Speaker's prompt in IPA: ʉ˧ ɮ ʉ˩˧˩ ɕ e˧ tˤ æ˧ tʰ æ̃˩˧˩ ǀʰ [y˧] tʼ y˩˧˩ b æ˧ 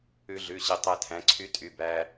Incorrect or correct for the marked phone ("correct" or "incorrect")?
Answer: incorrect